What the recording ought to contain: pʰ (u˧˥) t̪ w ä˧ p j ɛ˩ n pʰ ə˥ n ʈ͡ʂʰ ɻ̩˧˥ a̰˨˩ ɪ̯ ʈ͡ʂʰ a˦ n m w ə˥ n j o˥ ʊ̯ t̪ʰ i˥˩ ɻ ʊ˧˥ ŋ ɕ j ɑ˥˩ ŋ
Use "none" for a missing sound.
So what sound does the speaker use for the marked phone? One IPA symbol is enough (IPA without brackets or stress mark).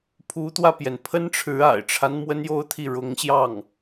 u˧˥